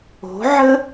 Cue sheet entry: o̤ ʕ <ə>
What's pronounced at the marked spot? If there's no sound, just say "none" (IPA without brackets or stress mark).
ə